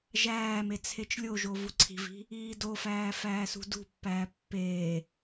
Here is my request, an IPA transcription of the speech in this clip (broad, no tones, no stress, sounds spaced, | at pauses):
ʒ æː m e t͡sʰ e t͡ʃ lʲ o ʒ o v u ǀʰ i̤ v i̤ | iː d o f æː f æː s ṳ d ṳ pː æː pː eː